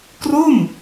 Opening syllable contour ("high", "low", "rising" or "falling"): falling